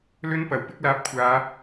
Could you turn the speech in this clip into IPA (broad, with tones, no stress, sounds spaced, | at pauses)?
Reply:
l ɵ˧ n p ɐ˨˩ w p ɪ˧ k̚ l aː˧ p̚ kʷʰ aː˨˧